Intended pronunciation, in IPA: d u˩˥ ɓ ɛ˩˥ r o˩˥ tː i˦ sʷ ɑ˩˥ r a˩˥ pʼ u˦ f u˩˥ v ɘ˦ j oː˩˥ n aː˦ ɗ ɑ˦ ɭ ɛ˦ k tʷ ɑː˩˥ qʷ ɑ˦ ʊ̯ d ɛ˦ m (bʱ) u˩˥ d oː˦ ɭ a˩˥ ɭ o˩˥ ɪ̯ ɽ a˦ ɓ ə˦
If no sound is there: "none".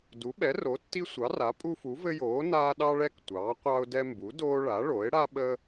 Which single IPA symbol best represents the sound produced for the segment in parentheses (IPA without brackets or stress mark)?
b